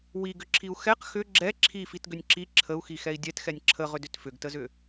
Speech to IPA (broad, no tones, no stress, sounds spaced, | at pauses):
w i ɡ ʏ ǁʰ i u̯ x ɛ q x ʏ ɡ͡ǁ ɛ ǁʰ i f i t ɡ ʏ nʲ ǁ i ǁʰ ə u̯ x i x ɛ i̯ dʲ ɛ t x ɛ nʲ ǁʰ ə ʁ ʏ d ʏ t f ʏ ɡ t ə z ʏ